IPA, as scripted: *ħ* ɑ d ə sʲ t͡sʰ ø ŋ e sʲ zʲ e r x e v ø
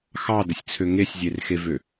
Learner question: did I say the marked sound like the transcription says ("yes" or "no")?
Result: no